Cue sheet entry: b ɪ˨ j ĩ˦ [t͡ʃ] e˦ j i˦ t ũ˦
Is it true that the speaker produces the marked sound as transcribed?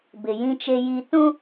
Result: yes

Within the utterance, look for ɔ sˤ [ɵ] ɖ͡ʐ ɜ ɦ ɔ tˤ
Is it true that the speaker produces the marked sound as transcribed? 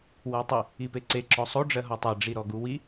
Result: no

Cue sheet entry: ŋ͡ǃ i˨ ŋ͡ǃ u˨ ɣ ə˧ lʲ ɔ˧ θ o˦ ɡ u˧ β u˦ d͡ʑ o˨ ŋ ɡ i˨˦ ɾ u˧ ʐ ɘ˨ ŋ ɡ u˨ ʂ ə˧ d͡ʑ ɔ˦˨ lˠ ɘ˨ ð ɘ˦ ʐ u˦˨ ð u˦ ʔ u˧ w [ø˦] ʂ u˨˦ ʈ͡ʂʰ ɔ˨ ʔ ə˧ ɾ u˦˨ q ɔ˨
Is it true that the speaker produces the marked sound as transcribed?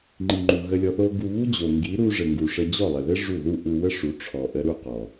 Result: no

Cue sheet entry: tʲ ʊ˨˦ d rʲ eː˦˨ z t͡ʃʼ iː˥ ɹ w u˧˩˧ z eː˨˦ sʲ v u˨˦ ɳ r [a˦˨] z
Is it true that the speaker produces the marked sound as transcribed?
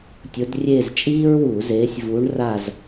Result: yes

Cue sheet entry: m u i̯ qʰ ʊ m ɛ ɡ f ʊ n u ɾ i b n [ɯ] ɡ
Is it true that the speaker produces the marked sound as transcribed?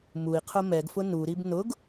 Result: no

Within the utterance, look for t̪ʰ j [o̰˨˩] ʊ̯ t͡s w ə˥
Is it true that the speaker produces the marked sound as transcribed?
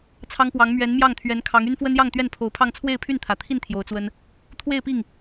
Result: no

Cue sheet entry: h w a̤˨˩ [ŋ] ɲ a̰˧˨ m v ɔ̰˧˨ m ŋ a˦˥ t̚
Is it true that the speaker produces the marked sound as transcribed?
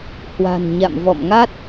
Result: no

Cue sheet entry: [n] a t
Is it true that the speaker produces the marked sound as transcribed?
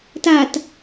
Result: no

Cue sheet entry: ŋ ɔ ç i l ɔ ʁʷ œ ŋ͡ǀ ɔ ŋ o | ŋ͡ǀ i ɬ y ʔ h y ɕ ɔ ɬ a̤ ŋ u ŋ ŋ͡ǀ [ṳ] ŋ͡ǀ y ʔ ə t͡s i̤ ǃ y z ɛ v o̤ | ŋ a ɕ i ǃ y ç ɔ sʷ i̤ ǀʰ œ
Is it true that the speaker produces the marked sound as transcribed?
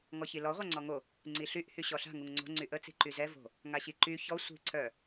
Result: no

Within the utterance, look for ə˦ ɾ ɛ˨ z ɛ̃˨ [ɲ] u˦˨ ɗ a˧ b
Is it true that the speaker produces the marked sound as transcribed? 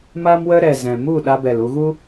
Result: no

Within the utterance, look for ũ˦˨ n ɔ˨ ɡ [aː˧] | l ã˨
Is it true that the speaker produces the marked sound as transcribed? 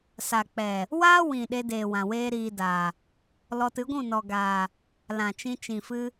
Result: no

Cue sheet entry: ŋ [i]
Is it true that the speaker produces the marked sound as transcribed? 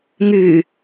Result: no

